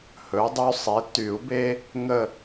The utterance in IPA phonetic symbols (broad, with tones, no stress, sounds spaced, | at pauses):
h ɵ˩˥ dˤ y˦ sˤ e˩˥ t y˨˩˦ u̯ b e˦ | ŋ ə˦˨